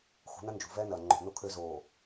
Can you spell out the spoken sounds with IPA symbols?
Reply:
xṳ˨˦nɐ˦nd͡ʒṳ˨ vɛː˦nɐː˨ ŋ͡ǃo̤˨ no˨kʰø˨ zoː˨

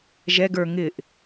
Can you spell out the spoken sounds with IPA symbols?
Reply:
ʒɛɡ ə˞ ŋɪʔ

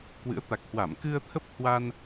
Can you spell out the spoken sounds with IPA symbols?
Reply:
kwɨ̰˧˥ə̯t̪a˨˩k̚hwa˧˩m kɨ˧ə̯t̪ʰə˦˥p̚ hwa˧n

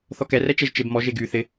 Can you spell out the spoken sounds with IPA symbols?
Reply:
θɔkɛrɛ t͡ʃɛʒt͡ʃebmɔʒe ɡy θɪ

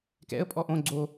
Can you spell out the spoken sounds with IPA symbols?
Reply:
kɛ̰ə̯pʼɔ ʔõ ɡ͡ǀo

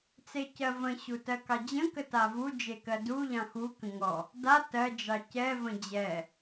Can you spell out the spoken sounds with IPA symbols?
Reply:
t͡secɜvə̃ ɕutɜkɑd͡ʑə̃ kətavu d͡ʒekɜdu ʎɑ̃xu kə̃ŋɔ | da tɜ d͡ʒɑcɛ və̃d͡ʑɛ

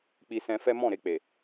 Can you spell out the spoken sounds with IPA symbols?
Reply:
k͡pi˧sɛ̃˧fɛ˦ mɔ̃˦˨ɾe˧k͡pe˨

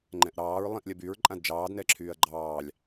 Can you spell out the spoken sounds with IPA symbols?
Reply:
ŋ͡ǃɛ̃ʔɾɑːɹ lˠĩʔlʲɐbyɹ ǃʼãdd͡ʒɑːd nɛǁʰyːɐ̯ɡ͡ǃɑːlʲ

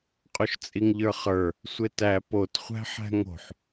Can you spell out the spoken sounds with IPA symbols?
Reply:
qʼoʃt͡sʼiŋʎə˞χə˞ | sʷetæ pot χʷæ̤ħæ̤ŋo̤ħ

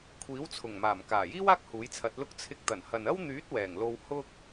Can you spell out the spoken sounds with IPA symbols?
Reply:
kʷʰiː˨˥wt͡sʰʊ˨˩ŋmaː˨˩m kaː˨˩jiː˥w aː˥k̚ huː˨˥jt͡sʰɐ˨˥t̚lʊ˥k̚ t͡sʰɪ˧k̚t̪ɐ˨˩nhɐ˨nɐ˥w n̪yː˨˥t̚ wɛː˨˩ŋlo˧w hʊ˥k̚

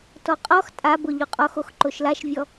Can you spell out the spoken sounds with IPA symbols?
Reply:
tɔqʼɔx tʼabʊ ʎuqʼɔxox ǃoʃlaʃvʲɔ

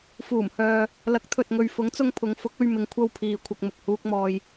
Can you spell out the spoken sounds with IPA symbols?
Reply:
fuː˨˩mhœː˨ | lɐ˨˥k̚t̪ʰɵ˨t̚ŋɵ˨ɥ fʊ˨˥ŋt͡sʊ˧ŋ pʰʊ˨˧ŋ fʊ˨˥k̚ɵ˧ɥ mɪ˨˧ŋ kʷʰɐ˥wpʰiː˨ kʷʰɐ˧k̚mʊ˨k̚huː˥k̚mɔː˧j

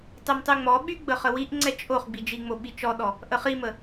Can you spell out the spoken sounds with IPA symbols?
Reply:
tˤymtˤyŋ͡mɔɓy ɡ͡bəχəwiʔŋ͡ǀɛ t͡ʃʼoχ ɡ͡bid͡ʒiŋ͡mo ɓit͡ʃɔɗɔ | ʔəχimə

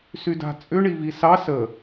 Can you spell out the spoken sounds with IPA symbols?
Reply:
syda̤t͡sʼʏ ɳivisɑ sə

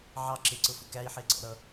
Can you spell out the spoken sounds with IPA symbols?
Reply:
ʕɑ ǁɪǀʊfʊ kæi̯ħɪːǀɔ̰ɾʌ

